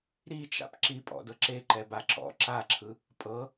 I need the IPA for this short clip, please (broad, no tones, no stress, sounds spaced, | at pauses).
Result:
ɾ i t͡ʃ a̰ p ǁ i pʼ ɔ̰ d ɤ ǁ e ǃ ɛ b a ǁ ɔ̰ ǁ a ǁʰ ɯ | pʼ ɤ